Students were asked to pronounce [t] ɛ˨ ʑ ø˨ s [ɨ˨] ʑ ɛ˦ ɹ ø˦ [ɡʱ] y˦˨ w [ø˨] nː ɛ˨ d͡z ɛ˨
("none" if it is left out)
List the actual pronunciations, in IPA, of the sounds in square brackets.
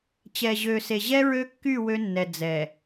t͡ɕ, e˨, kː, ø˦

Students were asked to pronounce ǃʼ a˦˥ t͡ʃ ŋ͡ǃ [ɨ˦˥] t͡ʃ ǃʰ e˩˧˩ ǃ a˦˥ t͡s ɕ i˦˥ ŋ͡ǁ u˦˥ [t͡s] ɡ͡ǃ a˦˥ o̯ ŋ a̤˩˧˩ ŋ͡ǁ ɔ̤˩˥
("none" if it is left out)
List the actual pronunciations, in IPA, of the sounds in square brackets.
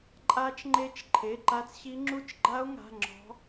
e˦˥, t͡ʃ

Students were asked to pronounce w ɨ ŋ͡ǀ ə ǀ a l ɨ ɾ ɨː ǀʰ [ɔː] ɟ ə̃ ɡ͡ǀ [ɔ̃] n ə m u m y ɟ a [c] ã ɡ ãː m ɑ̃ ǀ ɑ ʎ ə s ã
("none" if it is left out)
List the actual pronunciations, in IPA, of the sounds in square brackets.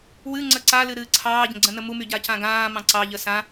ɑː, ə̃, c

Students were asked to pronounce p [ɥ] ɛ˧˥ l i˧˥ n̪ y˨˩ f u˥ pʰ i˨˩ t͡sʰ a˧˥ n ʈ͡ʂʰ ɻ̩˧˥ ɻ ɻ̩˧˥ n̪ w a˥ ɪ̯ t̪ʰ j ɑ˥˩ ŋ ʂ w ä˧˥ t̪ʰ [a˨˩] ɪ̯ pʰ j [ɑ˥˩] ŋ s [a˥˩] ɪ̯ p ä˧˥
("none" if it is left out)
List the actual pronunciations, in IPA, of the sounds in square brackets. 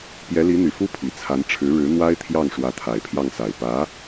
j, a˨˩, ɑ˥˩, a˨˩

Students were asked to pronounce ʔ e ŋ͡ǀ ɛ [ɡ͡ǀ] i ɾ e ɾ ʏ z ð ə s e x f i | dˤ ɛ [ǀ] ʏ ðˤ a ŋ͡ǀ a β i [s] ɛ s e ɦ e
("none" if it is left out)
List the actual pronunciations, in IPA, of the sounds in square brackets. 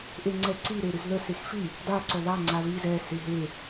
ǀ, ǀ, z

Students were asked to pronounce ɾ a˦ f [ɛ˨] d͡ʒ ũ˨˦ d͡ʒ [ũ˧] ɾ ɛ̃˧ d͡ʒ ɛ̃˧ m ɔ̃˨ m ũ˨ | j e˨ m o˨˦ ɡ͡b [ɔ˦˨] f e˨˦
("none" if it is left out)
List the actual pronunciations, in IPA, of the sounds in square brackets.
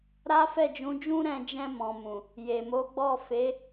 ɛ˦˨, ũ˦, ɔ˦˨

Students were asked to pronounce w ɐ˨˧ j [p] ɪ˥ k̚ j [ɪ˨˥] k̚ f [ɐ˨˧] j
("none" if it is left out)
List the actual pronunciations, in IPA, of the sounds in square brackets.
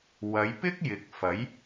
p, ɪ˨˥, ɐ˨˥

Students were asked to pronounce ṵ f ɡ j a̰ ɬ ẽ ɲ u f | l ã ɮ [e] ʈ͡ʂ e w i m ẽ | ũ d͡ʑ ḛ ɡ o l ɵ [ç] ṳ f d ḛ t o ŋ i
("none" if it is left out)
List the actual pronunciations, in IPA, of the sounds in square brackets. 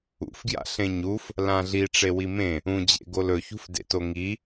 i, ç

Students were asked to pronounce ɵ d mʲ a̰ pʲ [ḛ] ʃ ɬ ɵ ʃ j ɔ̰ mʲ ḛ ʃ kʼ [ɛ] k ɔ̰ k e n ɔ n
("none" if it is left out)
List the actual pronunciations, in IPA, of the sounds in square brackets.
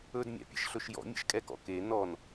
ḛ, ɛ

